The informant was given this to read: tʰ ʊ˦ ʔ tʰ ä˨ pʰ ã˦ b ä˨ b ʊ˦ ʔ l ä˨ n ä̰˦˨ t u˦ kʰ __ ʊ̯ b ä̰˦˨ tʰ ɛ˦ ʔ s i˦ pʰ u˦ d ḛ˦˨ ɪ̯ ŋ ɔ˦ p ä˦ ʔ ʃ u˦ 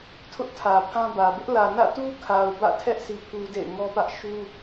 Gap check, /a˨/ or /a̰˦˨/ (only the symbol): a˨